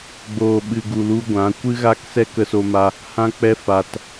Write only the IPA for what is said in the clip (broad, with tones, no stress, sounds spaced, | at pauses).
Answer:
ɡ͡b oː˨ ɓ ɨ˨ ɡ u˨ l u˧ ɡʷ ã˨˦ kʷ ɨ˦ ɣ a˦ k s ɛ˦ k ə˦ s o˦ m a˦ | h ã˦ k͡p ɛ˦ f a˧ t